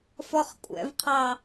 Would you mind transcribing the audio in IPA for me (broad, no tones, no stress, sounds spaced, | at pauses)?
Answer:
f ɔ χ kʷʼ ɛ̰ v qʰ ɑ